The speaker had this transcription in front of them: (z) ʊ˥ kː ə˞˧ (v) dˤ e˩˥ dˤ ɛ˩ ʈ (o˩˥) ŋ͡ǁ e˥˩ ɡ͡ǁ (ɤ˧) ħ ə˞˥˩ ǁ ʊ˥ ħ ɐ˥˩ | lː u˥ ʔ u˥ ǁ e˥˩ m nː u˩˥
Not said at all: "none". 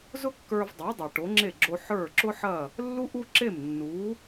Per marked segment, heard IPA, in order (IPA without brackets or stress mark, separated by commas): z, v, o˩˥, o˧